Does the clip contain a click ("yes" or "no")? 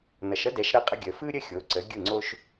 yes